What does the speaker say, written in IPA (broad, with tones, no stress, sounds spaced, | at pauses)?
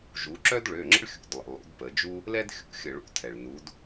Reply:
ʒ u˩˧ ǁ œ˥ d ɭ ø˩˧˩ ŋ͡ǁ ə̰˥ ɭ xʲ ṵ˩˧˩ d lˠ ə̰˩˧˩ lˠ ṵ˩˧ d p ə˩˧ d͡ʒ u˥ | l ɛ˥ d xʲ ṵ˥ xʲ ə˧˩˧ ɭ ṵ˧˩˧ tʰ ɛ˩ ɭ n u˩˧ d